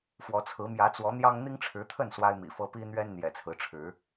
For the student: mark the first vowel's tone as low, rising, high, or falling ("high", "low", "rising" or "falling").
rising